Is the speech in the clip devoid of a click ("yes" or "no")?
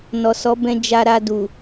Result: yes